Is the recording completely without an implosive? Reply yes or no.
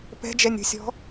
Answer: yes